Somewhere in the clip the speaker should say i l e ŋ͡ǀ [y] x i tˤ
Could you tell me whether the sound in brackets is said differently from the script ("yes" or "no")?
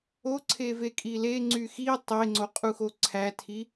no